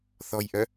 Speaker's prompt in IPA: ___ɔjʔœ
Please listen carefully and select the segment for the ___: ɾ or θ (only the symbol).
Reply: θ